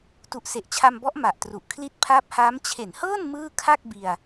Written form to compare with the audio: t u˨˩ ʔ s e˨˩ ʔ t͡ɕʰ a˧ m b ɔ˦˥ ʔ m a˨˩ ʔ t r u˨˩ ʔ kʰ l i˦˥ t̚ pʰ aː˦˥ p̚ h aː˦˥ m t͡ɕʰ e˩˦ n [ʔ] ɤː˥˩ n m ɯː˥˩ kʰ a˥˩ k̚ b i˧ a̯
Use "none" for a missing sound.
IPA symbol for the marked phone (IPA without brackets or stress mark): h